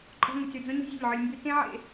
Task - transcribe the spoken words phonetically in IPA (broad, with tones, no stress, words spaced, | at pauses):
ǃʼɔ̤˧ ŋy˨t͡sy˨ d͡zõ˦ɲɔ̤˦zʲɔ̤˦˨ʎʕə˞˧lʲ mby˧ tẽ˦ʕḛ˧